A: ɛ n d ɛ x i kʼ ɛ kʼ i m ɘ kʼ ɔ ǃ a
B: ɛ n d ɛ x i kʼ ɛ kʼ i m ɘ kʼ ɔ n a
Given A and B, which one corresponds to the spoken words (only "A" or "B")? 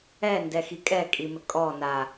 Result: B